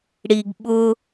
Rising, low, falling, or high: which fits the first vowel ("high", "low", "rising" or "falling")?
low